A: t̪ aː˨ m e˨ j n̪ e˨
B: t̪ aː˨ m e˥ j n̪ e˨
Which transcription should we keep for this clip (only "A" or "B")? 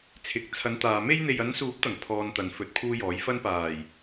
B